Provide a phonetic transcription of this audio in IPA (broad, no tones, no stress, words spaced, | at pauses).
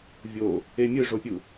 vʲo | emʲɯʐopʲu